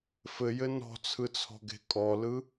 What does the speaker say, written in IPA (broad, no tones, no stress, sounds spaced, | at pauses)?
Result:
f ɘ j ɘ n ɔ̤ t͡sʰ ɯ t͡sʰ ɔ̤ ɡ e̤ kʼ ɔ l ɯ